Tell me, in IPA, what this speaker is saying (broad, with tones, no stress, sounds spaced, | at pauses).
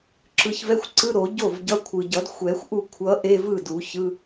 ǁ ɯ˨˩ ç v ɛ˧˥˧ xʷ ǀ ɯ˧˥˧ ɾ o˨˩˦ ɟ o˥˩ v ɟ ʌ˧˥˧ kʷʰ ɯ˨˩ ɟ ʌ˨˩˦ d xʷ ɛ˨˩˦ xʷ ʔ u˥˩ kʷʰ ʌ˧˥ ʔ e˧˥˧ v ɯ˥˩ d u˨˩˦ ç ɯ˧˥˧